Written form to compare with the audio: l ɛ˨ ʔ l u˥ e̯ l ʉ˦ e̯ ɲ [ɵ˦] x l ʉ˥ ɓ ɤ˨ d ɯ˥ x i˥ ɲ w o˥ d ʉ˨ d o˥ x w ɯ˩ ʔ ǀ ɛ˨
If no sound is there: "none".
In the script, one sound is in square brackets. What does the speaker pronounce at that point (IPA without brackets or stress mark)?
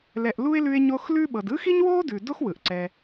o˦